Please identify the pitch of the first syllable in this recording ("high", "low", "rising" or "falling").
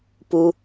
low